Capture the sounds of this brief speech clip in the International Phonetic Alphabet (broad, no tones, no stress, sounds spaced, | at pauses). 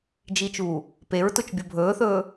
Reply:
d͡ʒ i t͡ʃ uː | p e ɹ t ʊ t͡ʃ bʲ o bʱ ɵː θ ɵː